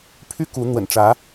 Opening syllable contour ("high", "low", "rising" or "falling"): high